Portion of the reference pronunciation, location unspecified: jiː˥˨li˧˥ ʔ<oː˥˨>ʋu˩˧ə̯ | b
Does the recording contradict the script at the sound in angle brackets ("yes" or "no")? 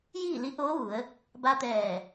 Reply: yes